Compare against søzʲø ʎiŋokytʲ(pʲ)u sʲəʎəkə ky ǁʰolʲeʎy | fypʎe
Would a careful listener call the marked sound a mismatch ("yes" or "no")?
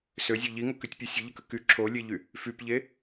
no